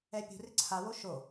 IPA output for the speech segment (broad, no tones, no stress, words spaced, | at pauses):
ɛpʲṳrɪ ǀʰawo ʃo